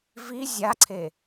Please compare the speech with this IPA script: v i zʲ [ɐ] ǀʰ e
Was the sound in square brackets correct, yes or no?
no